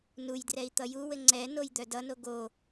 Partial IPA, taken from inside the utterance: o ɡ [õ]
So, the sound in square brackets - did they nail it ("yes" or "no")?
no